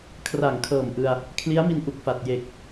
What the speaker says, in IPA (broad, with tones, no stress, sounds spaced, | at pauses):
kʰ r a˨˩ ŋ kʰ ɤː˨˩ m ʔ ɯ˧ a̯ | kʰ l i˦˥ a̯ m i˧ n ʔ u˨˩ k̚ f a˨˩ t̚ j e˨˩ k̚